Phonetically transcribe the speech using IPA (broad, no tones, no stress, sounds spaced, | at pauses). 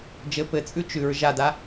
d͡ʒ ɘ p ɘ t͡sʼ ʉ t͡ʃ ʉ ɹ ʒ a d a